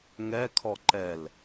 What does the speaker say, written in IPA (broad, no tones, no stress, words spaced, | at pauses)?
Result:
ŋɛkʰɔ ǃɛl